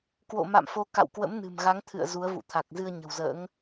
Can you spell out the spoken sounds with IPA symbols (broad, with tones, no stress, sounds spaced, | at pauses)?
k w o̰˧˨ m a̰˧˨ m f o˨˦ k a̰˧˨ w k w ə̰˧˥ m n ɨ̤˨˩ m ɣ a˨˦ ŋ t̪ʰ ɨ̰˧˨ ə̯ z u˨˦ ə̯ v ṵ˧˨ t̪ʰ a˨˩ k̚ z ɨ˧ ə̯ ɲ ə̤˨˩ w z ə̰ː˧˥ ŋ